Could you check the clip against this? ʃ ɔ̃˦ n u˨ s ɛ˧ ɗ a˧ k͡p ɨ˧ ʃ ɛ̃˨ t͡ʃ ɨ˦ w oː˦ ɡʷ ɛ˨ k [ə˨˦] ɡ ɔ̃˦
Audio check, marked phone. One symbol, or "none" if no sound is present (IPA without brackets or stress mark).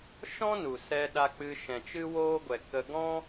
ə˧